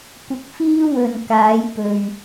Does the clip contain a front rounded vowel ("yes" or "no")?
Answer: no